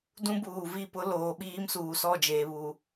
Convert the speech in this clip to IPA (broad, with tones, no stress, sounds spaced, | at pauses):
d ũ˦ b uː˨ v i˦˨ p ʊ˦ l oː˨ ɓ iː˦ m s uː˨ s ɔ˦˨ d͡ʒ eː˨ β u˨